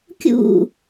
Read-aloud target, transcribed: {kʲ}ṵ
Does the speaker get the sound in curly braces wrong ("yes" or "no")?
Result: no